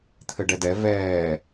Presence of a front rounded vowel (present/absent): absent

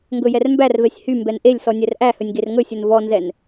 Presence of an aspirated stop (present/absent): absent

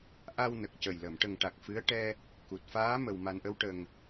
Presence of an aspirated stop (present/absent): absent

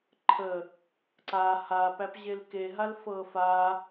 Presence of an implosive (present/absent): absent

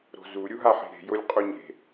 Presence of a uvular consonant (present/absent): present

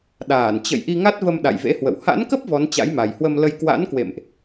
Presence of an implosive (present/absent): present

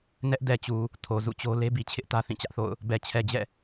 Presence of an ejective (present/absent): absent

